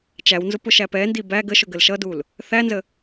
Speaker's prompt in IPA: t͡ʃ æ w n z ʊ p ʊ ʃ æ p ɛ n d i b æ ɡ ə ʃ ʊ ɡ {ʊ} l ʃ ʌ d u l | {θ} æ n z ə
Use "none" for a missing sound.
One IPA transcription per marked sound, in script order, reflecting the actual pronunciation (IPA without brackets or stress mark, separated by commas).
ə, θ